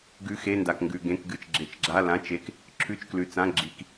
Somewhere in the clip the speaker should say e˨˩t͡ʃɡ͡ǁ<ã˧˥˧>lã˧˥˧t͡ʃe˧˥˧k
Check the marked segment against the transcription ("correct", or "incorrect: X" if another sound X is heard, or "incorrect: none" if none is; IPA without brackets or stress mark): incorrect: a˧˥˧